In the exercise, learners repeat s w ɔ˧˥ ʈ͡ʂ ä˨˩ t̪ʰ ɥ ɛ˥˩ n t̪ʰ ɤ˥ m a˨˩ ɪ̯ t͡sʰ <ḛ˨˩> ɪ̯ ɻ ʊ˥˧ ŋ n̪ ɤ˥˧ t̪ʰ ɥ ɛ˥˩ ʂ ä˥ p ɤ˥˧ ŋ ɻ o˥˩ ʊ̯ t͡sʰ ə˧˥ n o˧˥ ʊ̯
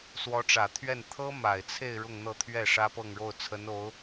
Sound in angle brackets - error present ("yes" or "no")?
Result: yes